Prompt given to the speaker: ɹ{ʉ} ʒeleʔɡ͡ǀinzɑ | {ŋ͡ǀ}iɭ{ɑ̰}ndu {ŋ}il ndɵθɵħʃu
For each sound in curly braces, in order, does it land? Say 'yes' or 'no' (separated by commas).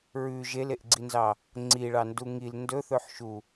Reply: yes, yes, no, yes